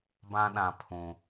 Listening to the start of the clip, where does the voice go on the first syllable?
high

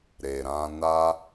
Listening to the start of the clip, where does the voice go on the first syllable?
low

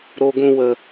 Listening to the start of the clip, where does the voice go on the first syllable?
low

